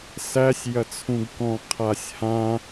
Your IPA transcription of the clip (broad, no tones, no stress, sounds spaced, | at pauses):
s æ sʲ j ɐ t͡sʰ ũ ɡ k ɔ̃ qʰ a sʲ h ã